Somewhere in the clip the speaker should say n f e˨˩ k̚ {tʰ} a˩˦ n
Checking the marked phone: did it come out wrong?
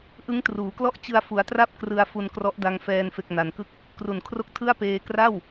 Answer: yes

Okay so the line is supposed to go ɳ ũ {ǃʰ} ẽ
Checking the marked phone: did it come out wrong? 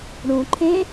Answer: no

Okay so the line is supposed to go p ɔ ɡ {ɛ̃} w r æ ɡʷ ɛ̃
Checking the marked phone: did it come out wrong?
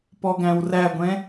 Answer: yes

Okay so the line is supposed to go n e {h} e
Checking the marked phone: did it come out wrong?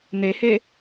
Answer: no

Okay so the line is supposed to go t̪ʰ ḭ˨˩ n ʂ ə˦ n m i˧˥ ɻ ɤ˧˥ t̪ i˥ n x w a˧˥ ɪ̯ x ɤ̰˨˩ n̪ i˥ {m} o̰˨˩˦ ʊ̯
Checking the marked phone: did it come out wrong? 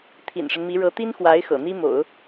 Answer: no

